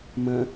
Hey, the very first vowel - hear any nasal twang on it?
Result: yes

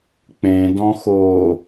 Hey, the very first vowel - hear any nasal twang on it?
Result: yes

